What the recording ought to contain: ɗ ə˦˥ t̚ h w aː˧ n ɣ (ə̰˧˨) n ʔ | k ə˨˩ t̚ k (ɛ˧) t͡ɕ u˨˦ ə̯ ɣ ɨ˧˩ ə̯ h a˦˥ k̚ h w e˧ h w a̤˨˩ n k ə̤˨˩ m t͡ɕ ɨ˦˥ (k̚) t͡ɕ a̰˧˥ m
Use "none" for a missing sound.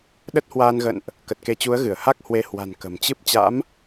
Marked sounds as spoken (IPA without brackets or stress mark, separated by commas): ə̰˧˨, e˧, p̚